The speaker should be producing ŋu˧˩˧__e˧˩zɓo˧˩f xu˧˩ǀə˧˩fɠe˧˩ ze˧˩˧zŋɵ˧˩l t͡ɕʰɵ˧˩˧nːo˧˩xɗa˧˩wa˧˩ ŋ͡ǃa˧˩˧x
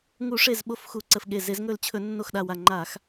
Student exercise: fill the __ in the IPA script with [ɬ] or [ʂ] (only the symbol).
ʂ